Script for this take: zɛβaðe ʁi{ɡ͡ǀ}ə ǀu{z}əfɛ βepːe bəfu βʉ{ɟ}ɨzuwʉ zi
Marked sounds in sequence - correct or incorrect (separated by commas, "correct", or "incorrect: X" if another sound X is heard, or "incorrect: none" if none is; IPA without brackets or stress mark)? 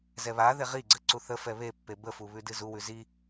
correct, incorrect: θ, incorrect: d